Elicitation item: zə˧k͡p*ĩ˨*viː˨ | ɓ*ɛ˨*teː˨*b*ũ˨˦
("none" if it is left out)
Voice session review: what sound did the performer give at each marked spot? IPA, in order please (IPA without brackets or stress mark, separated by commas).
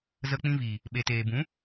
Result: ĩ˧, e˨, b